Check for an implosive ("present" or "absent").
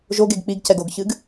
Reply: absent